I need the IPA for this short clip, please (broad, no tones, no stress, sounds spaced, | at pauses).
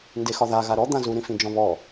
n d e x ɒ ð a ɣ a ɾ ɔ d̪ ã z u ɾ ĩ f ĩ d͡ʒ ɔ̃ β ɔ